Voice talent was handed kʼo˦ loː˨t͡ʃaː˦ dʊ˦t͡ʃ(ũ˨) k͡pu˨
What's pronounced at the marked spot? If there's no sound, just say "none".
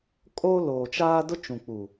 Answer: ũ˨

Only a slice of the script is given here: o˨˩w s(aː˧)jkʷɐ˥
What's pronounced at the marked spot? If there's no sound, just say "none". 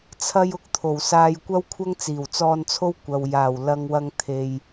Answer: aː˧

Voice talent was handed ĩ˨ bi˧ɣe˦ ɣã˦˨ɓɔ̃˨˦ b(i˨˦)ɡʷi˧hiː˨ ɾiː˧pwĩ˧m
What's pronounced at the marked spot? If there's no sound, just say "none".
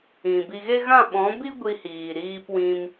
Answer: i˦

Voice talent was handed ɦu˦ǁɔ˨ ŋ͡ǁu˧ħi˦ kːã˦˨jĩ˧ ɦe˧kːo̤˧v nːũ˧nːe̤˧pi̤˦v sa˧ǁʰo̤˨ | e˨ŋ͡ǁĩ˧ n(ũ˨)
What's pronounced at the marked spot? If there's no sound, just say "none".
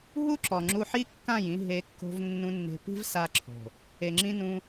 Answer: ũ˧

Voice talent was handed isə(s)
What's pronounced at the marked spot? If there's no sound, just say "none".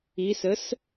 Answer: s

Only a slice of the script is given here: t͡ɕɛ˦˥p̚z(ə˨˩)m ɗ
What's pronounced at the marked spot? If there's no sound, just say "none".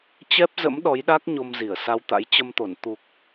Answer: ə̰˧˥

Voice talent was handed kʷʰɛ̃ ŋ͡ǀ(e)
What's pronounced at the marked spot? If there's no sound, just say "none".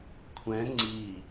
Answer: i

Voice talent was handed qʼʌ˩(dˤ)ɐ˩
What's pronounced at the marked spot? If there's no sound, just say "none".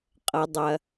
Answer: dˤ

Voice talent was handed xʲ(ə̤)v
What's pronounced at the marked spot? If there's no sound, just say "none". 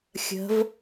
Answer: ə̤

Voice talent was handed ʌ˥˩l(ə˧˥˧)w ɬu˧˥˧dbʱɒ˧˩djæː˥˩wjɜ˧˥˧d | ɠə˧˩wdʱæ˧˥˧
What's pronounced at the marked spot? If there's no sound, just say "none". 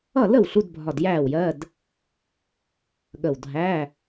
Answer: ə˥˩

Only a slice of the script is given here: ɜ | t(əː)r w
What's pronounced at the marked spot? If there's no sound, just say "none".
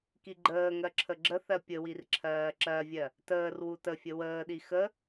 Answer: əː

